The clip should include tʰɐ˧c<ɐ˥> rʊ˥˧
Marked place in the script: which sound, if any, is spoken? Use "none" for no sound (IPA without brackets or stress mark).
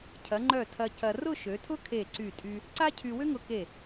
ɐ˧